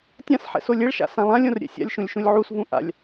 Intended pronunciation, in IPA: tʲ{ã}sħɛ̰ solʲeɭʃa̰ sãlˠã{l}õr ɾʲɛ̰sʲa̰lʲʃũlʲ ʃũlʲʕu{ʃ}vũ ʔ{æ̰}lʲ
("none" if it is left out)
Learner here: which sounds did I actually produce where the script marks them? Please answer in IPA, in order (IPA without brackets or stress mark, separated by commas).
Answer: ã, lʲ, s, a̰